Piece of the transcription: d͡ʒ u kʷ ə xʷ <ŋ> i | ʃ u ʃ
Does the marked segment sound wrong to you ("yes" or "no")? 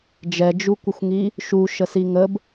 no